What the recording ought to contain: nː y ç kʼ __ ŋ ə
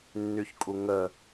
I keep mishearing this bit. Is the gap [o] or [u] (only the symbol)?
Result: u